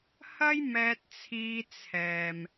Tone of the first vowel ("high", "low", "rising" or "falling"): high